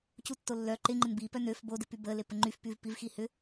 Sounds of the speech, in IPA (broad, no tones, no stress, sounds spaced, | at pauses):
c u tː o lː œ ǃ ɪ ŋ͡ǃ ɪ n b i p œ n ø f b o d ɪ p y b ə l e p ə ŋ͡ǃ y f p y v p i v x i h ʏ